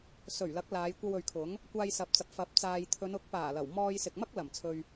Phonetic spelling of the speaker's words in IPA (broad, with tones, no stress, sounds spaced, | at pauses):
s ɵ˨˩ ɥ l ɐ˨˥ k̚ l aː˨˧ j kʷ ɐ˧ w ɵ˨ ɥ kʰ ʊ˨˥ ŋ | kʷ aː˧ j s ɐ˨ p̚ t͡s ɐ˨ p̚ f ɐ˨˥ p̚ t͡s aː˨ j t̪ʰ ɵ˨˧ n ʊ˨˥ k̚ p aː˨˩ l ɐ˨˩ w m ɔː˧ j s ɪ˨ k̚ m ɐ˥ k̚ l ɐ˨˩ m t͡sʰ ɵ˨ ɥ